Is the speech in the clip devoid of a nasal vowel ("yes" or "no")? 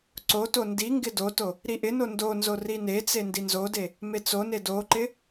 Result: yes